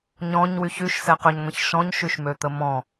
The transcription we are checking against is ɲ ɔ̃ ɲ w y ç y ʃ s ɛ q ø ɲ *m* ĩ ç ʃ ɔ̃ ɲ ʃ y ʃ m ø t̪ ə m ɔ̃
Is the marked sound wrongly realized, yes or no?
yes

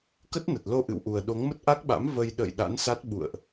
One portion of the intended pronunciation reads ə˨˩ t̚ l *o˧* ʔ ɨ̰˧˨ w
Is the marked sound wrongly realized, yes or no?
no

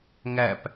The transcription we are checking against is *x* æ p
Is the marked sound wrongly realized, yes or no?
yes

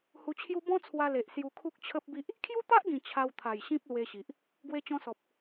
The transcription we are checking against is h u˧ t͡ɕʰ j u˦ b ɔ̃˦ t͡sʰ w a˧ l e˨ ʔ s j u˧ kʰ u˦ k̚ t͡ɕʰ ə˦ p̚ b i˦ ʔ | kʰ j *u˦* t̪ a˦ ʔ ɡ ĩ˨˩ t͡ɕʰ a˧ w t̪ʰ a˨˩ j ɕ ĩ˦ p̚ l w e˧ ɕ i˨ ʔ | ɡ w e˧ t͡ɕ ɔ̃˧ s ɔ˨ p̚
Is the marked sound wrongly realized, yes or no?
no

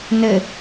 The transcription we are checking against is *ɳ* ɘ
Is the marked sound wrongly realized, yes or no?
yes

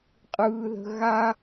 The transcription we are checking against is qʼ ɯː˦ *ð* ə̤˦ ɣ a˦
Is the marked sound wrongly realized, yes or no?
no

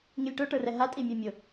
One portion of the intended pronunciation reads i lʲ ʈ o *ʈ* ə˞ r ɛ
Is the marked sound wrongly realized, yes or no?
no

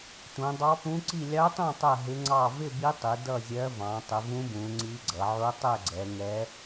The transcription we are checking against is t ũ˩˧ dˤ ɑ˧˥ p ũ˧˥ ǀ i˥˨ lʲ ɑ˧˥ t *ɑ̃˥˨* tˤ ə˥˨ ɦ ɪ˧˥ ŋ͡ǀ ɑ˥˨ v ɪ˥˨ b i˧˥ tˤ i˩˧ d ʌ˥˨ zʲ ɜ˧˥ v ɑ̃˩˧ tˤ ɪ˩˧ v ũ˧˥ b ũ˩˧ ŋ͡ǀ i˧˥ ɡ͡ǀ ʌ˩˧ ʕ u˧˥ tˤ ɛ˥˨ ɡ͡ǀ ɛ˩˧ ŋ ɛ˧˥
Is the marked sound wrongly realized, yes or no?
no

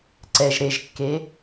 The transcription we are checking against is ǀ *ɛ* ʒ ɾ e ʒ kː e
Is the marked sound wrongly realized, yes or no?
no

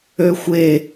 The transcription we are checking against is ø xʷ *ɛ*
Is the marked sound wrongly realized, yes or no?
yes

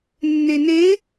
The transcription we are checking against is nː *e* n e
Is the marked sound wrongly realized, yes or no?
no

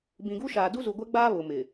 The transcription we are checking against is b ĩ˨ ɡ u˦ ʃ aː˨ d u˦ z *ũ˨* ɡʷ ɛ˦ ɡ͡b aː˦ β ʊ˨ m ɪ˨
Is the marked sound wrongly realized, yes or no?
yes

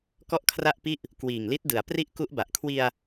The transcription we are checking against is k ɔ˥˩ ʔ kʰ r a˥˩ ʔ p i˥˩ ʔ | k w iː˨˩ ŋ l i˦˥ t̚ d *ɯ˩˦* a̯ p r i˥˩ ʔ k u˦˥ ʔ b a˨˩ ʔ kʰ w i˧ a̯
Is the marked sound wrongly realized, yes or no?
no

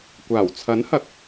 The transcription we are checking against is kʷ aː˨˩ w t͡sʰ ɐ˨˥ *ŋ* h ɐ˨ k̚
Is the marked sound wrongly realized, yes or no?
yes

